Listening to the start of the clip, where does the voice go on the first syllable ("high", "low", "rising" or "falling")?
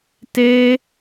high